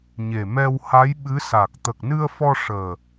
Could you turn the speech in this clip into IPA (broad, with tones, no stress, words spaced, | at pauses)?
ɲe˨˩mɛ˧wha˧˥j ɓɨ˧˥sa˨˩k̚ t̪ə˨˩k̚nɨ˧ə̯fɔ˧ ʂəː˨˩